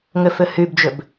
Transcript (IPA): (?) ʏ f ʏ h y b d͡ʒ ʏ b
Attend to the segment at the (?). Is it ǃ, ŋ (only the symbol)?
ŋ